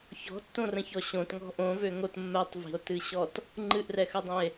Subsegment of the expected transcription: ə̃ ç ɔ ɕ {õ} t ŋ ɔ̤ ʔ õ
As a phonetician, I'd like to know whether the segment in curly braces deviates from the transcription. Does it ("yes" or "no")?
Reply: no